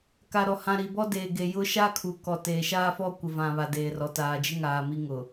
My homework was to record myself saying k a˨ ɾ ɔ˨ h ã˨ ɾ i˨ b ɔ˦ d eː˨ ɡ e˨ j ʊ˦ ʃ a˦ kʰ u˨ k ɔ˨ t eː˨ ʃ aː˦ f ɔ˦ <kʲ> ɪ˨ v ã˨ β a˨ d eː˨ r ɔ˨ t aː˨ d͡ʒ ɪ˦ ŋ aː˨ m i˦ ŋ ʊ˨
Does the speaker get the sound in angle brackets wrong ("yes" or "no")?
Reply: yes